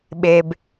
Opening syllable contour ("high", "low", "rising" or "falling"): low